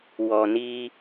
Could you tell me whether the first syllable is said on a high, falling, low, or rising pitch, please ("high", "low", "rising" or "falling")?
low